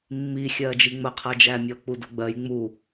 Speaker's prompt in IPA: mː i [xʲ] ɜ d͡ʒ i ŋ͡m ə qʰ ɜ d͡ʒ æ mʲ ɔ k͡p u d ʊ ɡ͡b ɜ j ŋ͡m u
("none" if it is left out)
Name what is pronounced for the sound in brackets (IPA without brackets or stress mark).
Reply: xʲ